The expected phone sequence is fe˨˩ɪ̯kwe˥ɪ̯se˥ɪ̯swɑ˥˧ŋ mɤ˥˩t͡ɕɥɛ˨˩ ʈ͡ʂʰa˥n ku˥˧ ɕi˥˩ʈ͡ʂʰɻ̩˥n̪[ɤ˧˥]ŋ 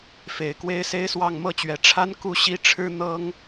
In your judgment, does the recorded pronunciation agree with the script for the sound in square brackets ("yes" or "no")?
no